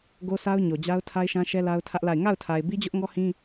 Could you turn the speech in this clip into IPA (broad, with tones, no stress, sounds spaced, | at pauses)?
ɡ o˦ sʰ a˦ ʊ̯ ɲ o˨ d͡ʑ a˦ ʊ̯ tʰ a˦ ɪ̯ ʃ ã˦ ʃ ɛ˦ l a˦ ʊ̯ tʰ ä˦ ʔ l a˦˨ ɪ̯ ŋ a˦˨ ʊ̯ tʰ a˨ ɪ̯ b i˦ d͡ʑ ʊ˦ ʔ ŋ ɔ˦ h ĩ˦